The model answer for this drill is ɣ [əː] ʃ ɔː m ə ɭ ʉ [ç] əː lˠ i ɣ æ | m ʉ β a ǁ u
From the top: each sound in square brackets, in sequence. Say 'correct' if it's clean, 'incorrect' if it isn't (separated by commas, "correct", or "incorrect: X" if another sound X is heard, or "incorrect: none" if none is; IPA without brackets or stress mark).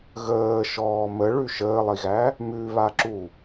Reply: correct, incorrect: ʃ